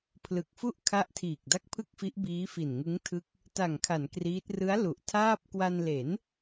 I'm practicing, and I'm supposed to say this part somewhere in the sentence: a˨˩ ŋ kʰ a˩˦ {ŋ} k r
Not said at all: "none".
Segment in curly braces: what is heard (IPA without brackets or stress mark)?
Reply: n